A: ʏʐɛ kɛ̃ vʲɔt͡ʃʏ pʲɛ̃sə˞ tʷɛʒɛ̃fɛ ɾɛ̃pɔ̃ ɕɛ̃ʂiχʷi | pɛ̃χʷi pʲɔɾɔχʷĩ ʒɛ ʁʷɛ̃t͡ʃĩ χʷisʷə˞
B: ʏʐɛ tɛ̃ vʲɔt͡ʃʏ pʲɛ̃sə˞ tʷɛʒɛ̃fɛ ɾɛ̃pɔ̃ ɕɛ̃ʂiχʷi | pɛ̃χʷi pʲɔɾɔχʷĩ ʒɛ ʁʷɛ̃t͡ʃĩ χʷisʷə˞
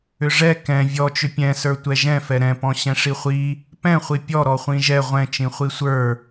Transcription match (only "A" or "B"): A